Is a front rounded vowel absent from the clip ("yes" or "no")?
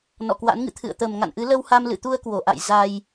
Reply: yes